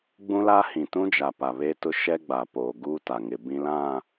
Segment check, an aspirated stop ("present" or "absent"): absent